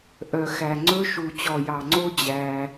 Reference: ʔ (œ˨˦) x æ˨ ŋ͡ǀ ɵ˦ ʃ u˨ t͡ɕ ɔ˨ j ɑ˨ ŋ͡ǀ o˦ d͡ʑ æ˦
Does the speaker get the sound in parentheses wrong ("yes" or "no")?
yes